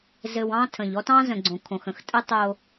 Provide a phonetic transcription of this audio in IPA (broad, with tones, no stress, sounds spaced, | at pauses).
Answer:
z ɘ˨ w ɑ̃˦ tʰ ə̃˨ ʎ ɔ˦ t ɑ̃˦ z ə̃˨ ɡ͡ǀ õ˨ kʰ õ˨ x ə̃˨ x tʼ ə˦ tˤ o˦